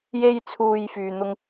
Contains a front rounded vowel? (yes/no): yes